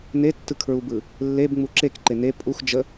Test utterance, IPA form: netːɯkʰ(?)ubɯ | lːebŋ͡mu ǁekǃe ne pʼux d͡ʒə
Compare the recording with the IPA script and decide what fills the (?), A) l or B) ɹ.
B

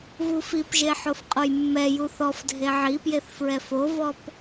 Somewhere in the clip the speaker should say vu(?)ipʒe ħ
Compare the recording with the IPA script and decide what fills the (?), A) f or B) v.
A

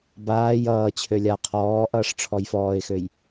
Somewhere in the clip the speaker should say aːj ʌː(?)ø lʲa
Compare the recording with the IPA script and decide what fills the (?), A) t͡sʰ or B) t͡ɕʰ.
B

